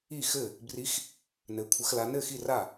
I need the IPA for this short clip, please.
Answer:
i˥˨ x ɘ˥˨ | b r i˧˥ x | n ɘ˧˥ kʷʰ ə˧˥ x l a˧˥ n ɘ˥˨ x i˥˨ r a˥˨

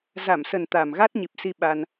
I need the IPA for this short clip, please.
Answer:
z a˧˩ m s ə˨˩ n t̪ a˨˩ m ɣ a˦˥ t̚ ɲ i˨˩ p̚ s i˧ ɓ a˧ n

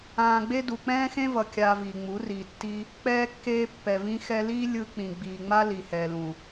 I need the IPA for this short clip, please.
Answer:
ãː˨ ɡ͡b e˧ d u˨ k͡p ɛ̃ː˦ x ẽ˦ v ʌ˨ kʲ aː˧ v iː˨ ŋ͡m u˨˦ r iː˨ tː i˧ | k͡p ɛː˧ kː eː˧ pː ɛ˨ v ĩ˧ x ɛ˧ l iː˦ lʲ ɯ˦ k͡p ĩ˨ ɡ͡b iː˨ ŋ͡m a˦ l i˨ h ɛː˨ l ũ˨

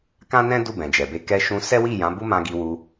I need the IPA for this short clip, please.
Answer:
k ã˦ n ɛ̃˦ d u˦˨ b ɛ̃˨ d͡ʒ ɛ˨ b e˧ k ɛ˧ ʃ ũ˧ s ɛ˦ w i˦˨ j ã˨˦ b u˦ m ã˧ ɡ i˧ w u˧

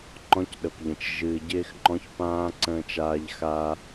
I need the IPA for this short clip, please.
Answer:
ŋ͡ǃ ɔ̃˦ c ɗ ə˨ p ʎ ə̃˨ t͡ʃ ʒ ɨː˨ ɟ ɪː˦ x ŋ͡ǃ ɔ̃˦ ç p ãː˦ ǀ ə̃ː˦ t͡ʃ aː˦ ʎ x a˦

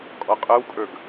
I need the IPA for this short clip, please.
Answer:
kʼ ɔ qʼ ə˞ w kʼ ə˞ ɡ

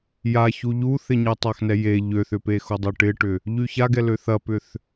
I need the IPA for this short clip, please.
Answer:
j a ç u ʎ u θ ɪ ɲ e tˤ a x n ɛ j e ʎ ø θ ʏ p e x o dˤ ø ʈ ɪ ʈ ʏ | ʎ y ç a ɡ ɛ l ø θ ɐ p ʏ θ

